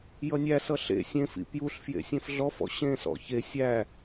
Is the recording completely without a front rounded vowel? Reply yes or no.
yes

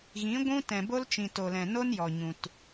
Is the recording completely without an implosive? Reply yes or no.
yes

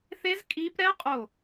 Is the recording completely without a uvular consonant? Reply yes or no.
no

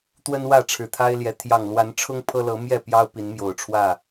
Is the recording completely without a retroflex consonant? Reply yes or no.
no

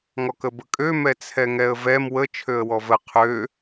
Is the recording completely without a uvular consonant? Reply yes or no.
no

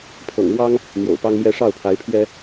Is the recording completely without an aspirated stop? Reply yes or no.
no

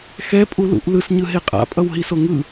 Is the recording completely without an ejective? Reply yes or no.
no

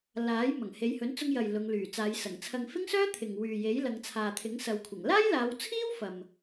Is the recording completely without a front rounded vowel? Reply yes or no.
no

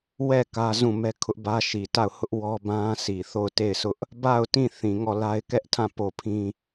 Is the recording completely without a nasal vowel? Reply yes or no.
no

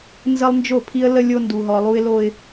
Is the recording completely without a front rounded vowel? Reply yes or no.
yes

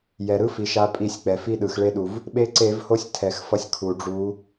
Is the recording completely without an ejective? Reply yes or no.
no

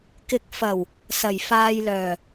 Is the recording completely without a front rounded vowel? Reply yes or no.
no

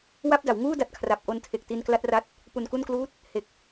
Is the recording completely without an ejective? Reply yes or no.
yes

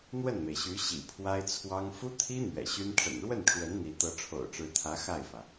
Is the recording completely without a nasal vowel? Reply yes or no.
yes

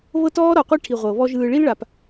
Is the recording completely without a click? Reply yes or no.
yes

